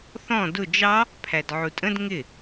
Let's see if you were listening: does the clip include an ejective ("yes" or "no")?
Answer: yes